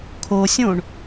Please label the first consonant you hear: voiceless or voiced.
voiceless